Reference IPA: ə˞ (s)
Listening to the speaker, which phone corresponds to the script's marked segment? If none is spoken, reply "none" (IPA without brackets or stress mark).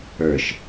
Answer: ʃ